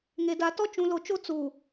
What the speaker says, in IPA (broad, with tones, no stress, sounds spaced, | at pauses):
ŋ e˨ d a˨ t ɔ˦ t͡ʃ ũ˨ l o˨ t͡ʃ o˦ t͡s uː˨